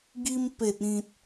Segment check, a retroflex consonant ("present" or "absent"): absent